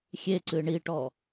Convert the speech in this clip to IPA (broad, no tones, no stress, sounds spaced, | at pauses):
xʲ e ǀ ɨ ɳ i ʈ ɔ